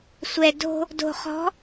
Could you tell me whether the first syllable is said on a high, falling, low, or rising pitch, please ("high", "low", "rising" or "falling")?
low